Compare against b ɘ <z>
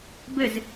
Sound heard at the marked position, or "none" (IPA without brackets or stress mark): z